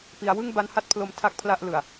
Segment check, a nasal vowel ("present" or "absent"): absent